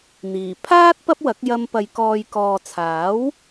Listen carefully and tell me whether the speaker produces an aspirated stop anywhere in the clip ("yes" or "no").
yes